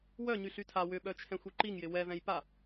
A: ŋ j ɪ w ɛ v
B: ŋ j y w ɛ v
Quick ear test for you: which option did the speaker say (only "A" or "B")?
A